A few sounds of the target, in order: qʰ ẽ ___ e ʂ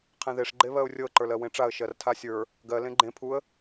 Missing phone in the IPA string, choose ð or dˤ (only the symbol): ð